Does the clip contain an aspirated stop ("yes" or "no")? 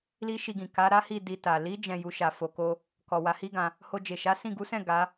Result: no